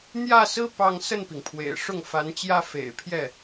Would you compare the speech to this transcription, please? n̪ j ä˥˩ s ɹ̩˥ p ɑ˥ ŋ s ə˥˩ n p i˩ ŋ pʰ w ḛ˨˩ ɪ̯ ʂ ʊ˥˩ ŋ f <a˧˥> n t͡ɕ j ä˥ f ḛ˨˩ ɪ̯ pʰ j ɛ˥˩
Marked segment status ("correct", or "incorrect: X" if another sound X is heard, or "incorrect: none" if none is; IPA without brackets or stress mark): correct